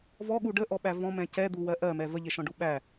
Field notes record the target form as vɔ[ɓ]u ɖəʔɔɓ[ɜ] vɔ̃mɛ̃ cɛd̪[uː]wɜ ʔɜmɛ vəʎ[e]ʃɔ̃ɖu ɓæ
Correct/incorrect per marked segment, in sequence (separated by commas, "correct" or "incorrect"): incorrect, incorrect, incorrect, correct